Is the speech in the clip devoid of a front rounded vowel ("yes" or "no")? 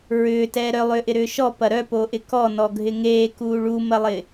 no